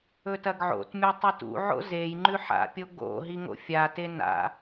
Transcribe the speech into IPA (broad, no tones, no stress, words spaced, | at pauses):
ɵtɐɡʕo̰tmʲa tˤɨtṵʕo̰ zej ŋ͡ǃʉħa̰pʲo ɡo̰ ɦiŋo̰fʲate na̰